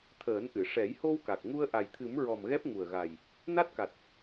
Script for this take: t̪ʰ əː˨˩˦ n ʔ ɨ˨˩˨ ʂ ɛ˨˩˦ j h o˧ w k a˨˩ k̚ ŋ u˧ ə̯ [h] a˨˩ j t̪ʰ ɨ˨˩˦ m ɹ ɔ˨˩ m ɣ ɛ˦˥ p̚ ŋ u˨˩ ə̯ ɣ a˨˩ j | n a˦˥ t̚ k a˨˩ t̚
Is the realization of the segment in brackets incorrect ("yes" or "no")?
yes